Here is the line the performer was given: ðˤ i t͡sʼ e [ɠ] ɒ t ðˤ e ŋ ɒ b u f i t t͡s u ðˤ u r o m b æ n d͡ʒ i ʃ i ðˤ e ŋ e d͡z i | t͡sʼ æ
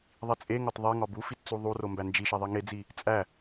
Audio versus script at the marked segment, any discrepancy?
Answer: yes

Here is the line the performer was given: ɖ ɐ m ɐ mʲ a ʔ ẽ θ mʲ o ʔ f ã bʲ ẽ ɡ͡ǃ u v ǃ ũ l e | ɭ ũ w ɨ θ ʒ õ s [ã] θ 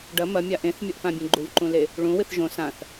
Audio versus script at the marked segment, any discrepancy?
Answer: no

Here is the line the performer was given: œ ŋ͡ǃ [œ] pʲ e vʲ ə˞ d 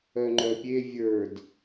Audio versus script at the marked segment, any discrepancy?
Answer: no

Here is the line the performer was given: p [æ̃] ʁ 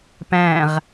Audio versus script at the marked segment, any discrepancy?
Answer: no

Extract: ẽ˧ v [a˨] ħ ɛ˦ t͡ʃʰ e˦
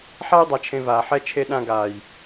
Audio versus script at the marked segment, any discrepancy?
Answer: yes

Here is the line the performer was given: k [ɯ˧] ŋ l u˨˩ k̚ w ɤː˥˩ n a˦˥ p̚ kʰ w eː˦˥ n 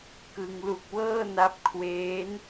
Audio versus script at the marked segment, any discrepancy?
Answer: no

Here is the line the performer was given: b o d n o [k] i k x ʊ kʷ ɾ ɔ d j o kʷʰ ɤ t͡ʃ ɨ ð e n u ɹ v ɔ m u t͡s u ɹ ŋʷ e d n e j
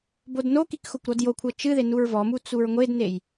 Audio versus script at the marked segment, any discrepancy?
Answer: no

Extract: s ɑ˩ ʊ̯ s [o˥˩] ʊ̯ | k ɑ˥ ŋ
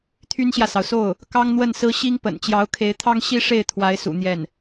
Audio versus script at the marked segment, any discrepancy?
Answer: no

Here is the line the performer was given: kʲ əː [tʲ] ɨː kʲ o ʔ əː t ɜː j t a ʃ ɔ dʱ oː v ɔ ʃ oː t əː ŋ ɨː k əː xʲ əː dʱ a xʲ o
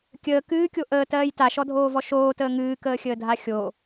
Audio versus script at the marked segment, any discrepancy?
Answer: yes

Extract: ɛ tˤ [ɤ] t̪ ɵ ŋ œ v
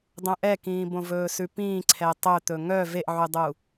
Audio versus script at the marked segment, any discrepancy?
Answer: yes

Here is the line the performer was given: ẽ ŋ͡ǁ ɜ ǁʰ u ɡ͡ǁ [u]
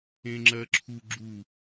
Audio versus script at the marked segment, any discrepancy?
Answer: no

